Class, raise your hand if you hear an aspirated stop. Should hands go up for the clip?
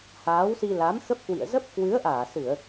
no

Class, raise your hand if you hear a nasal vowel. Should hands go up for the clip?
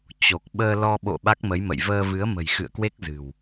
no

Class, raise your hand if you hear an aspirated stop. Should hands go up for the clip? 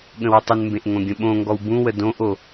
no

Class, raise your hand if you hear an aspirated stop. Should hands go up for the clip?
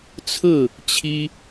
yes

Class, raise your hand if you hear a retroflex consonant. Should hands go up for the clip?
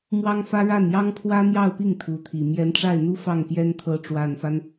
yes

